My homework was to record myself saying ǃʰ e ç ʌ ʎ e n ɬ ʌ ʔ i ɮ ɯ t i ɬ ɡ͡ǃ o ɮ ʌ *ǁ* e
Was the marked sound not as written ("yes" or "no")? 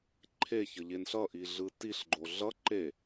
yes